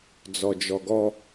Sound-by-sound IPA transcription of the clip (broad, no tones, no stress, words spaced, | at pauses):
d͡zɔd͡ʒɔɡɔ